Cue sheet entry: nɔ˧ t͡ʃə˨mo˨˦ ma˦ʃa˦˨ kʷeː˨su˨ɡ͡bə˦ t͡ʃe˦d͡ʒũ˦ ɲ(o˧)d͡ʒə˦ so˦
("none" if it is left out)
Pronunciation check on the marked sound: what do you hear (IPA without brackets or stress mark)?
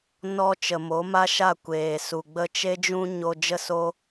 o˧